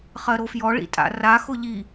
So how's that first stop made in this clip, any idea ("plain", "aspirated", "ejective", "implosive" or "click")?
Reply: ejective